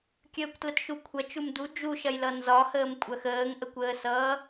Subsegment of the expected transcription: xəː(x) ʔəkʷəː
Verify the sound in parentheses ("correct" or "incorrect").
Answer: incorrect